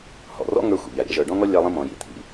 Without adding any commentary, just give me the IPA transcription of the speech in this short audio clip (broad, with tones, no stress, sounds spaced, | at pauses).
h ɔ̰˩ r ɔ̰˥ ŋ ə˞˦ xʷ ḭ˩ ʎ a˩ ɾʲ a̰˦ ʒ ə˞˨ ɖ ɔ̃˥ ŋ ɔ˥ lʲ a˦ lˠ ĩ˦ m ɔ̃˨ j ḭ˩ t̪ʰ ḭ˨